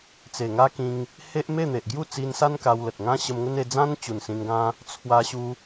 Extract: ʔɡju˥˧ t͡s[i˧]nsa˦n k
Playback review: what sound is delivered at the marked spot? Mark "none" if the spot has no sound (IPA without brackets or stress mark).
i˧